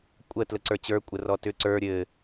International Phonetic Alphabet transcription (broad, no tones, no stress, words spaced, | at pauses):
kʷʼə tləǀə˞t͡ɕə˞ kʷʼərɔtʏ ǀə˞ ɾʲɘ